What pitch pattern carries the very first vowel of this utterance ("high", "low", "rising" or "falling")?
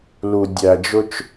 low